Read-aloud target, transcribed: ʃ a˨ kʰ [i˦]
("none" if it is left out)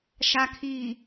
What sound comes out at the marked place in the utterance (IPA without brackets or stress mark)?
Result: i˨